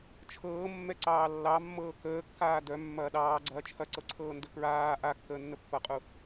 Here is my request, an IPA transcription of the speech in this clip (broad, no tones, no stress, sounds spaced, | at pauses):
t͡ʃʰ ɤː mː ɛ ǀ ɑː lː ɑ mː ɤː k əː kː aː d œ mː ɐː ɗ ɑː ɡ͡ǀ ɐː t͡ʃʰ ɐ ǀ ɤ ǀʰ ɤː n d ə k ɹ aː ʔ a kː əː nː ə pː ɐ qʼ u